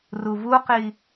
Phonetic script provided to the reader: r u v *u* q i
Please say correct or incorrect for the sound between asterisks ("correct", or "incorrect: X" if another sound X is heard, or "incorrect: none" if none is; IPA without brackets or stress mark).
correct